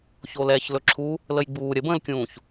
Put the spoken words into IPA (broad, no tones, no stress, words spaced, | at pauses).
çolɛːçlɵǁʰu | ləjɡ͡buː ɾʲəbə̃ːlkʲũːç